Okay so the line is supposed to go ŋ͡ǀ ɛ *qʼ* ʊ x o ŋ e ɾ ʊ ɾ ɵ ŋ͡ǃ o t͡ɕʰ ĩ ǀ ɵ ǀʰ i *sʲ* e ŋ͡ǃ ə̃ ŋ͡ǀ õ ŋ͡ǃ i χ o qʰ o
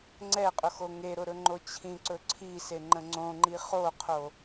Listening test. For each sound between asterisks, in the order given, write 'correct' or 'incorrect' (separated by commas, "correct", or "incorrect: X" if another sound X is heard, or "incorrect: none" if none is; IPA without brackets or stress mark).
correct, incorrect: s